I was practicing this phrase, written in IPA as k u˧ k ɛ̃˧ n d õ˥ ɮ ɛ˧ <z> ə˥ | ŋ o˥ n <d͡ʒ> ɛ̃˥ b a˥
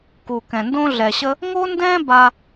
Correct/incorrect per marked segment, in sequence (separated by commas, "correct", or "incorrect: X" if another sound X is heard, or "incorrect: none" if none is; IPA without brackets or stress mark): incorrect: ɕ, incorrect: d